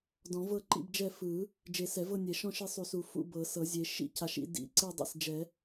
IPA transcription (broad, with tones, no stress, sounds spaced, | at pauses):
d ɔ̃˨˩˦ v ɤ˦˨ ǃ ḭ˦˨ b d͡ʒ ɛ˦˨ f ɯ˨˩˦ | d͡ʒ e˨˩˦ s ɛ˨˩˦ v ɤ˦˨ nʲ ɛ˨˩˦ ʃ ɔ̃˦˨ ʃ e˦˨ sˤ u˨˩˦ s u˨˩˦ f ṵ˦˨ b ɤ˨˩˦ s ɤ˨˩˦ zʲ e˨˩˦ ʃ ḭ˦˨ c a˨˩˦ ʃ ḭ˦˨ d ḭ˨˩˦ ǀ e˦˨ dˤ ḭ˦˨ s d͡ʒ ɛ˨˩˦